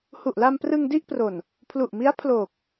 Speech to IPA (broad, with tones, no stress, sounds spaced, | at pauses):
h u˨˩ ʔ l a˧ m p r ɯ˧ ŋ d i˥˩ ʔ p r o˨˩ n | pʰ l u˨˩ ʔ m i˦˥ a̯ pʰ l oː˨˩ k̚